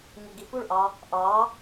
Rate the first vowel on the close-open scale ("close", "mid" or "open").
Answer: close